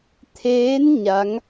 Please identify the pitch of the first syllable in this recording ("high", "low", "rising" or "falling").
rising